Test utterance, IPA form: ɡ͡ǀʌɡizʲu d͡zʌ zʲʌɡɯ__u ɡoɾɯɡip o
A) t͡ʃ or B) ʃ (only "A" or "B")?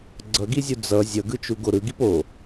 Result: A